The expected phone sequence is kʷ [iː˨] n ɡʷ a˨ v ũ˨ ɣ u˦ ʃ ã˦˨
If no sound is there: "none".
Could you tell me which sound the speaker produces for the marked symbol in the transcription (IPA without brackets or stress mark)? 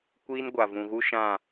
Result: iː˦